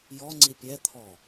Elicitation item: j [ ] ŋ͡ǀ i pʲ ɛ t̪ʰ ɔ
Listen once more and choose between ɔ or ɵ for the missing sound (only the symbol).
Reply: ɔ